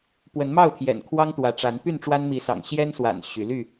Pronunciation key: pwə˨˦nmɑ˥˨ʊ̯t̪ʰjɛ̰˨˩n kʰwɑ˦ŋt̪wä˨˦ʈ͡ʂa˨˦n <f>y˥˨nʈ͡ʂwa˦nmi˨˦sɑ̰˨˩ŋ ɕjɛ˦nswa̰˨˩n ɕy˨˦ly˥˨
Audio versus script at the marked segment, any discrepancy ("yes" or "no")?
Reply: yes